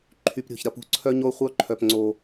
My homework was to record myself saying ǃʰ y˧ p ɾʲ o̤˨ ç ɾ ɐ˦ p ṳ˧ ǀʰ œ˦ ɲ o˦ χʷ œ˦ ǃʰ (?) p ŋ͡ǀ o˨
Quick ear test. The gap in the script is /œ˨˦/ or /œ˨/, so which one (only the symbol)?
œ˨